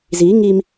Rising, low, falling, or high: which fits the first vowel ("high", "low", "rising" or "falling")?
rising